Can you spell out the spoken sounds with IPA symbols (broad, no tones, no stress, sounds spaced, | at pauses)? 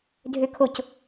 dʱ ø kʰ o c